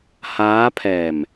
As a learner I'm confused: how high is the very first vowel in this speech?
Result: low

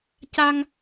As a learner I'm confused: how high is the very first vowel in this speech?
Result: low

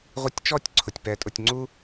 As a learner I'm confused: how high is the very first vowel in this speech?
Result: high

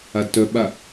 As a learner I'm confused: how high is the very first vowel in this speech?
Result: low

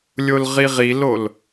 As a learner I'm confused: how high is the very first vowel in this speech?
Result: mid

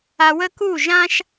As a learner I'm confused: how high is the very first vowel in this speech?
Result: low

